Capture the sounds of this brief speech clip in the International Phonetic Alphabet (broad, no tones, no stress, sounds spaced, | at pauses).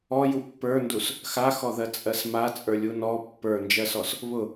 ɔ j u pː ə˞ n d u s | x a x ɔ ð ɜ t͡sʼ ɜ s m a t͡sʼ ə˞ lʲ u n ɔ pː ə˞ n d͡ʒ ɜ s ɔ s | β ʊ